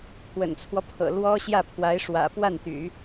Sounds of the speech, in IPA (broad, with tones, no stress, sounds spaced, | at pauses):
t̪ʰ w ə̰˨˩ n t͡sʰ w ɔ˦ pʰ ɤ̰˨˩ l w ɔ˥ ɕ j ä˥˩ pʰ w a˧˥ ɪ̯ ʂ w ä̰˨˩ p w a˥˩ n t̪ y̰˨˩˦